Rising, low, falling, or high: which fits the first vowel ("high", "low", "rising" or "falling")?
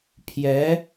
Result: rising